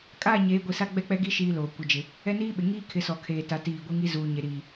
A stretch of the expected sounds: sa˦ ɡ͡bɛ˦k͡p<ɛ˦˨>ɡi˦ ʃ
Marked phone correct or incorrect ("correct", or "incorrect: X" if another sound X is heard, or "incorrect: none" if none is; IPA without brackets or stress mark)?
incorrect: ɛ˦